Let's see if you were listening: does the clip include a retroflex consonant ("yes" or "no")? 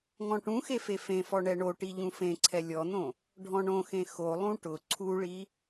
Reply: yes